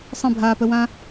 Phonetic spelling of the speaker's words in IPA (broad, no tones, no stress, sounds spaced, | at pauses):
sˤ ə̃ bʱ aː p ə w ã